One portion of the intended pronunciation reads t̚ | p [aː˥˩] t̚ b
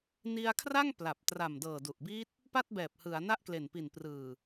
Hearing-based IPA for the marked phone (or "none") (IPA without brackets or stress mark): a˥˩